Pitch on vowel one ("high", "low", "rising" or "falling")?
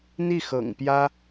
falling